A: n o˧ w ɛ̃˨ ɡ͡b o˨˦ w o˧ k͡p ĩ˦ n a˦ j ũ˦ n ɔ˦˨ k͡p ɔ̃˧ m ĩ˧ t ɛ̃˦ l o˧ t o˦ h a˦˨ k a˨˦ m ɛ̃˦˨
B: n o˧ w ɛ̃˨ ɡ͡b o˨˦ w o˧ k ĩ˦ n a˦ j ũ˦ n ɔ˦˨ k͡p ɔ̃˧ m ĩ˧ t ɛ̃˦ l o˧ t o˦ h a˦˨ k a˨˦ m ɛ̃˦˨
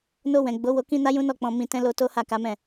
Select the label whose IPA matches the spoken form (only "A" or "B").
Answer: B